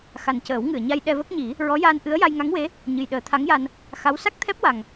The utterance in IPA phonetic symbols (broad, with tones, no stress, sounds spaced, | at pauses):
x a˨˩ n c əː˨˩˦ w ŋ ɨ˨˩˨ ə̯ ɲ a˧ j ɗ ɛ˧ v ə˦˥ k̚ ɲ i˨˩˦ | ɹ ɔ˧˥ j aː˧ n ʔ ɨ˧˥ ə̯ j a˧ j ŋ a˧˥ ŋ w e˧˥ | ɲ ɨ˨˩ j ɗ əː˨˩˦ t̪ʰ a˧˥ ŋ j a˧ n | x a˧˥ w s a˦˥ k̚ t̪ʰ ɛ˦˥ p̚ w a˨˩ ŋ